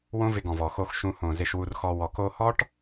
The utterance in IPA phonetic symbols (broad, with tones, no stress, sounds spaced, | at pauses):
w õ˦ v ɪ˧ ɡ ɔ̃˨ v ɔ˨ x o˧ x ʃ ũ˧ h õ˨ z ɪ˧ ʃ w u˧ r x ɔ˧ w ɔ˨ k o˧ h ɔ˦ ʈ